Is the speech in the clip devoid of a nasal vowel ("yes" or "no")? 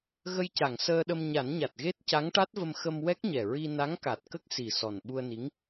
yes